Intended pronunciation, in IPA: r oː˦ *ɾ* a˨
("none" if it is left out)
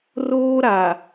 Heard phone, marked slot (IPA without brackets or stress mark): ɾ